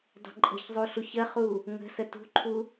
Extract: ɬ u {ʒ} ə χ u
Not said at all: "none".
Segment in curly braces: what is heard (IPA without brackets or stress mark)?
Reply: ç